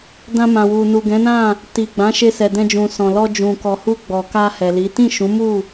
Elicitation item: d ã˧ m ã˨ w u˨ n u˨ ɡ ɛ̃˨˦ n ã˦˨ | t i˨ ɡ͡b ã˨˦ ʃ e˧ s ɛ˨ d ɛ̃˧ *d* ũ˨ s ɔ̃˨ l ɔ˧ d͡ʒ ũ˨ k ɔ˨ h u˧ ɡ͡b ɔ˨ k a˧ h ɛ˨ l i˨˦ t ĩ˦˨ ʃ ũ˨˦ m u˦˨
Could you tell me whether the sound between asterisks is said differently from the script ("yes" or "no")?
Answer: yes